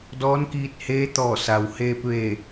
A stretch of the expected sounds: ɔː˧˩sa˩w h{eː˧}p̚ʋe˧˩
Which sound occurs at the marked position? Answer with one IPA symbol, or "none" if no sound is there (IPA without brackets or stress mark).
eː˧